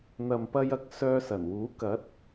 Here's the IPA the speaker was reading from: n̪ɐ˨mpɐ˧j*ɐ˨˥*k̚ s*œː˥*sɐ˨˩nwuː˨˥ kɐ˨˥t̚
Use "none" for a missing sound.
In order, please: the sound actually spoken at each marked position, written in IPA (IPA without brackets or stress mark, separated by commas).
ɐ˨˥, œː˧